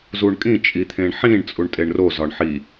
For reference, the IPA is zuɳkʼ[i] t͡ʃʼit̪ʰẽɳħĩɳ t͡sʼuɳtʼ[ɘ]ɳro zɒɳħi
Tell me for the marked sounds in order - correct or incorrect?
incorrect: ĩ, incorrect: e

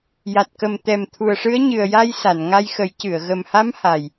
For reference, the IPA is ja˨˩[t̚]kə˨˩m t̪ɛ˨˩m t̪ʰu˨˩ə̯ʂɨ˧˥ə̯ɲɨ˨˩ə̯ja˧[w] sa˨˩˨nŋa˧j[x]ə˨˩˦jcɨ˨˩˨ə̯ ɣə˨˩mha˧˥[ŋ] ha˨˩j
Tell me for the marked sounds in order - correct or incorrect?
correct, incorrect: j, correct, incorrect: m

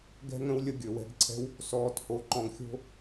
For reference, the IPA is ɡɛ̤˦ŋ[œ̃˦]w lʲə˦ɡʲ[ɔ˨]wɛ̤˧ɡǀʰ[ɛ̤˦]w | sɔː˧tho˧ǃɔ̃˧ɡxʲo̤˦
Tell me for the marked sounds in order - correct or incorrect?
incorrect: ə̃˦, incorrect: ɵ˨, correct

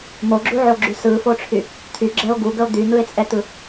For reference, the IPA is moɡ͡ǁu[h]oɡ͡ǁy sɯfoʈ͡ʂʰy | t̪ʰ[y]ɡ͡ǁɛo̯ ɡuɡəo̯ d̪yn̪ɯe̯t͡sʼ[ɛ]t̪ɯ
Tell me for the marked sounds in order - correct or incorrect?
incorrect: ʕ, correct, correct

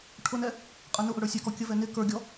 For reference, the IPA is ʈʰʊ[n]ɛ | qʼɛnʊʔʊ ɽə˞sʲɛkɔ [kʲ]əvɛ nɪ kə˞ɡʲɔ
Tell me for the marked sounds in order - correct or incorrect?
correct, correct

